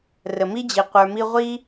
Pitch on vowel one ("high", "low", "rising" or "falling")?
low